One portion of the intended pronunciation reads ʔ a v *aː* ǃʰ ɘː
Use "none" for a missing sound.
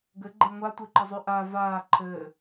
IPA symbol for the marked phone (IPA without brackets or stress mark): aː